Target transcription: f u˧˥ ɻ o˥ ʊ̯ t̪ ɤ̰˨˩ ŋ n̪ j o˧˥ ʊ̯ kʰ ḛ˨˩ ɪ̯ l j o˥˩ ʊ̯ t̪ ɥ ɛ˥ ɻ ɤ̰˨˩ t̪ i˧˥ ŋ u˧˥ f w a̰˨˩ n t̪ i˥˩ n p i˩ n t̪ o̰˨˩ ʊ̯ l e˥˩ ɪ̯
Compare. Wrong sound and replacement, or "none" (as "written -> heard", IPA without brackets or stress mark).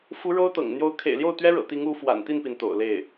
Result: none